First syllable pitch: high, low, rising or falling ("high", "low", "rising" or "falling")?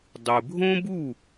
low